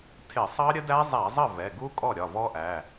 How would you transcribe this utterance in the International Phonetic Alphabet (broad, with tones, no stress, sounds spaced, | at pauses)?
tʰ ɪ˧˩˧ sˤ ɑ˦˥ ɾʲ ə˦˥ d æ˦˥ zˤ æ˧˩˧ zˤ ə˥˩ v ɛ˩˧˩ ɡ u˦˥ kʼ ɔ˥˩ ɾʲ ɒ˩˧˩ v ɔ˦˥ ʔ æ˩˧˩